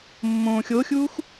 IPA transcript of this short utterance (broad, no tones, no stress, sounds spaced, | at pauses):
mː õː xʲ o xʲ uː x